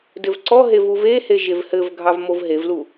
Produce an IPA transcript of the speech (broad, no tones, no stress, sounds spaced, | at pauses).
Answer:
d ɘ v ǀ ɔ ɦ e v u v e h e ʒ e v h ɘ v ɡʱ ɑ v m o v ɦ e v l u